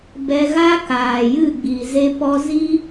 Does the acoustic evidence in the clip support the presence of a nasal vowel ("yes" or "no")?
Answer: no